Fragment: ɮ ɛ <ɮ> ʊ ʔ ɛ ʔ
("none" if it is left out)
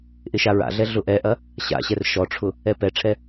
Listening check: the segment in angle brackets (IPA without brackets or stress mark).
ɮ